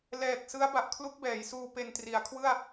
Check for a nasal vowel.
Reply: absent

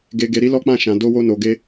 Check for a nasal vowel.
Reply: present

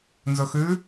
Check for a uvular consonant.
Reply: absent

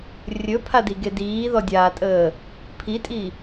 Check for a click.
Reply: absent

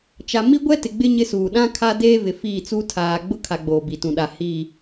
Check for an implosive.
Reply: present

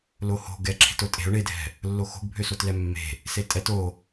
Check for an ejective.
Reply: present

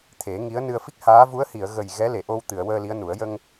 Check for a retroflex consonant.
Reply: absent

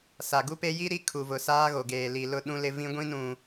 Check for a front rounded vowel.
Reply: absent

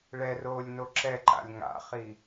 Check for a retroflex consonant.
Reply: present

